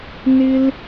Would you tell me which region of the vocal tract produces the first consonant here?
tongue tip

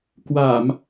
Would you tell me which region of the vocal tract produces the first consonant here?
velum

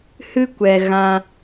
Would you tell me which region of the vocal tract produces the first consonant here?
throat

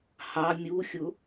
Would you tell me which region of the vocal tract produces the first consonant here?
throat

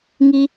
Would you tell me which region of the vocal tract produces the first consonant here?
velum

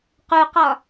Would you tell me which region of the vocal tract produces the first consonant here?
uvula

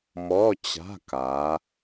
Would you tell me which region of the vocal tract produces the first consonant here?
lips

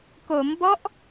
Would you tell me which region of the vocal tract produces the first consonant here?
velum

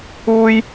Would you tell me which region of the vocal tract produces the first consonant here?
palate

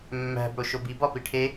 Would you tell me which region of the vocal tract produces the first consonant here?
lips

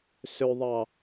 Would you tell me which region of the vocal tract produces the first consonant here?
tongue tip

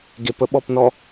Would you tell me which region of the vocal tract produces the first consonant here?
velum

